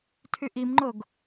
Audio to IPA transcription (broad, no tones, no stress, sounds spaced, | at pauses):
tʰ y ʔ i m ŋ͡ǃ o ɡ